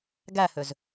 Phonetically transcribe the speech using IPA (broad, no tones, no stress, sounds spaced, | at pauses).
ɡ æ h ø z